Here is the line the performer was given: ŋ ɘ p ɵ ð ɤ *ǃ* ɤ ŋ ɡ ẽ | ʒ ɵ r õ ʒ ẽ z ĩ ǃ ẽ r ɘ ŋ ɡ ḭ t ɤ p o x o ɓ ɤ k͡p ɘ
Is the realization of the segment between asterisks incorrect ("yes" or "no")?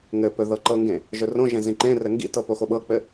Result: no